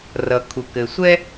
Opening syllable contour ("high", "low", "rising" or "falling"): low